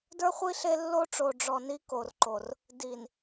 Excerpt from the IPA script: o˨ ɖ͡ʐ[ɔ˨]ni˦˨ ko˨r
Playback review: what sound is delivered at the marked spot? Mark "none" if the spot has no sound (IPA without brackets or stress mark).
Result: ɔ˨